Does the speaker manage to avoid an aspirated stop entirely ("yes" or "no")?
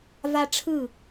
no